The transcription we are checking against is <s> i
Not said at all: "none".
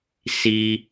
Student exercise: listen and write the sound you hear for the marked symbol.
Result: s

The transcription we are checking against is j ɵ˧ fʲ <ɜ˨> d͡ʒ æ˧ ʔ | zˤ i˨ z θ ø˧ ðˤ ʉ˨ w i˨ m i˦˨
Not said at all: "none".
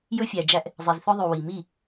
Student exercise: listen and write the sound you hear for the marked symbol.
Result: æ˨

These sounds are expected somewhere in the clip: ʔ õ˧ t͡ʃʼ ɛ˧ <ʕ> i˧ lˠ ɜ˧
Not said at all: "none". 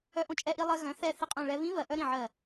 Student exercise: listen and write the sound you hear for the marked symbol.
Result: ʔ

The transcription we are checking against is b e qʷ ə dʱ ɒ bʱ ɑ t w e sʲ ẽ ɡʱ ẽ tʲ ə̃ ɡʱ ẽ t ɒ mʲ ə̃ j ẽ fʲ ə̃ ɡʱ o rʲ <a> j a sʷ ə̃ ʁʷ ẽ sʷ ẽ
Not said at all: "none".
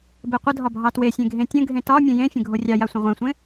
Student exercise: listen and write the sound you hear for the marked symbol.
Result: ɑ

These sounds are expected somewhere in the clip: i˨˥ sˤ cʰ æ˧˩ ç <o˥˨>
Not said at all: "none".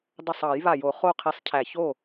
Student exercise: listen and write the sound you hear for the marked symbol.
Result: o˥˨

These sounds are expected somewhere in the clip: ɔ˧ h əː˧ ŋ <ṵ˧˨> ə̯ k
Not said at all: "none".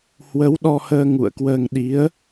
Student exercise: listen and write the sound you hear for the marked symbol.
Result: ṵ˧˨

